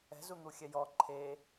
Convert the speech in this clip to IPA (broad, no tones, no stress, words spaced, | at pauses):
ɛ̤z un̪uxʲɛjɔ ǃʰe